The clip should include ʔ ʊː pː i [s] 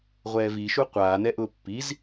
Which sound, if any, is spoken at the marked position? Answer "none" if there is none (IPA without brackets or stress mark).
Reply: z